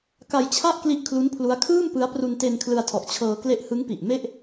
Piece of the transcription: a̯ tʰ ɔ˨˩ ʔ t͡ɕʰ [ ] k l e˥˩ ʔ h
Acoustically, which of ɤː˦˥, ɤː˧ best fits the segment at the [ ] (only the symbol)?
ɤː˧